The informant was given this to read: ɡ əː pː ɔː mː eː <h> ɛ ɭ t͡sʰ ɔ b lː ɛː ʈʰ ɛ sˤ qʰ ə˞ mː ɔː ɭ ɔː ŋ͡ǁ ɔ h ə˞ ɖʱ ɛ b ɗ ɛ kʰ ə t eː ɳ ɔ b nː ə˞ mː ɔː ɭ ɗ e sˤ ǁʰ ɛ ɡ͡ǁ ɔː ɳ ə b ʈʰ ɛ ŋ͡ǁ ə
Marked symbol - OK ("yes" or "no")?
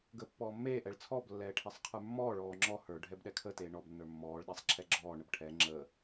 no